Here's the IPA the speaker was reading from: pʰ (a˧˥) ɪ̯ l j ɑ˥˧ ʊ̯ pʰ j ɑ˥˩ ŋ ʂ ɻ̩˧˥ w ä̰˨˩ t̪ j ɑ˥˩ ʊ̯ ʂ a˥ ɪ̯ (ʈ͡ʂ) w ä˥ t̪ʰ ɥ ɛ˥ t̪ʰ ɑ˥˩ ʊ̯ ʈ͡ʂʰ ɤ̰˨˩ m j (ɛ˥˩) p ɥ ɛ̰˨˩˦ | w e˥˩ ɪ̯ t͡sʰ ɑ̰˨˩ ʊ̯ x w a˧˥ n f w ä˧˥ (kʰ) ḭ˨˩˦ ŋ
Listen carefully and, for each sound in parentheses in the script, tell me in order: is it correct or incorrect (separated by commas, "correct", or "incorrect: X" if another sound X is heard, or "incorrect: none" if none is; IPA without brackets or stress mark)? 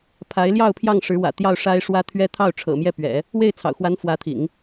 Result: correct, incorrect: ʂ, correct, incorrect: t̪ʰ